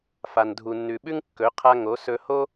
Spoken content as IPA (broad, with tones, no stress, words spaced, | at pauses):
fa˨ndʱu˨nːʉ˨ɓʉ˦ŋ kːɵ˨˦ qʰa˧ ŋo˨˦sɵ˧ho˦